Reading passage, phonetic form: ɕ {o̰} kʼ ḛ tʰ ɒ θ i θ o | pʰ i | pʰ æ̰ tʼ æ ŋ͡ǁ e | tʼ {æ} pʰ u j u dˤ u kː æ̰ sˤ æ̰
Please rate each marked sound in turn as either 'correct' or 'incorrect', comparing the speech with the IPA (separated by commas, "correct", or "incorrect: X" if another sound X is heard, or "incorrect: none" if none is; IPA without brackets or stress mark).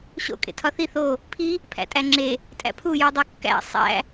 correct, incorrect: æ̰